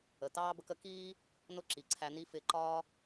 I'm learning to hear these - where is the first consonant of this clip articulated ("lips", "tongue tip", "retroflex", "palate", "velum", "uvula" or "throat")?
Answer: tongue tip